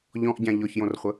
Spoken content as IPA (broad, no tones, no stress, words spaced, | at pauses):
ʎɔ̃ʔɟã ʎɔçjõrχʷə